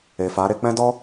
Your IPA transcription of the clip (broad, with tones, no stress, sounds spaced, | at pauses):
e˨ f a˨˦ ɾ e˦ k͡p ɛ̃˦ d ɔ˦